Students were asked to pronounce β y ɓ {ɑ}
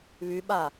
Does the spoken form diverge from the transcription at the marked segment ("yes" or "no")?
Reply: yes